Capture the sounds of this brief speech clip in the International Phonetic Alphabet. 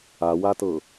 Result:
a w a t ɤ

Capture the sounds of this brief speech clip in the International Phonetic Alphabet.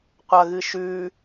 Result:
qʷ ɐ ɣ ɨ ʃ ʉ

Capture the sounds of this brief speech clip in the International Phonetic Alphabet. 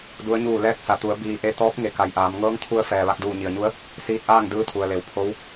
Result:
d u˧˥ ə̯ ɲ uː˥˨ l ɛː˧ k̚ s a˩ t̪ u˩˧ ə̯ b iː˧ ʔ e˧ t̪ ɔː˧˥ p̚ ŋ e˩˧ k a˩ j ʔ aː˩˧ m ŋ ɤː˧˥ ŋ t̪ʰ u˧ ə̯ f ɛː˩ ʋ a˧ k̚ d uː˧˩ ɲ i˩ ə̯ ɲ u˧˥ ə̯ | s iː˧ t̚ ʔ aː˥˨ ŋ d ɯː˧˥ t̪ʰ u˩ ə̯ l e˩˧ w pʰ o˧˥ w

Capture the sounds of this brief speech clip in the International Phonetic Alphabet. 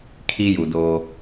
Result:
kʰ i˦ j u˨ d oː˦

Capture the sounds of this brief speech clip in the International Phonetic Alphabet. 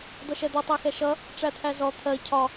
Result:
d̪ ʌ ʃ ɛ d̪ ʌ tˤ æ x ɛ ʃ ʌ | ʈ͡ʂ æ t̪ʰ æ z ɔ t̪ʰ ɜ cʰ ɒ

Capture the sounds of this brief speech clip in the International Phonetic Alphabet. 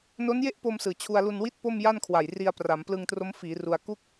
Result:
n o˦˥ n j e˥˩ ʔ p o˧ m s ɯː˨˩ t͡ɕʰ u˧ a̯ l u˧ n w i˥˩ t̚ p o˥˩ m j a˥˩ n kʰ w a˨˩ j r i˧ a̯ p r a˩˦ m p l ɯ˧ ŋ t r o˦˥ m f iː˩˦ r u˧ a̯ k u˥˩ k̚

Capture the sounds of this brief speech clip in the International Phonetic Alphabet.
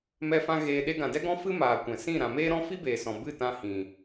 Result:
m ɛ˧ f ã˧ ɣ eː˧ ɗ e˧ ɡ ã˨ d ɛ˦ ɡ ɔ̃˦ f ɨ˦ m aː˨ kʷ ɛ̃˨ s ĩ˦˨ ɾ ã˨ m eː˦ ɾ ɔ̃˦ f i˦ b eː˨ s ɔ̃˨ b ɨ˦˨ t ã˧ h ĩ˨

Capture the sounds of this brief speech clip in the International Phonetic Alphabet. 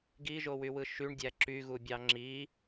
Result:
ɡ i ʒ o w y w ɯ ʃ y ɳ dʲ æ ǁ y ɣ u bʲ ɑ ŋ͡ǁ i

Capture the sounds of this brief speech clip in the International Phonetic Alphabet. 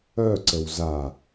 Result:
œ ǀ ə w z a

